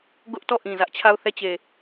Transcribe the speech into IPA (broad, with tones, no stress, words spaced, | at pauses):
ɡʊ˦ʔtɔ˦˨ʔĩ˨ zä˦ʔt͡ɕʰa˦˨ʊ̯ θɛ˦˨t͡ɕe˨